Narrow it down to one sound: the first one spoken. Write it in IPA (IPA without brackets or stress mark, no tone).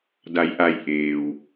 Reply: d